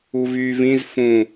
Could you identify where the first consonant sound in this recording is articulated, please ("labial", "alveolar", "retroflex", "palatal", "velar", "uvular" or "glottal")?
labial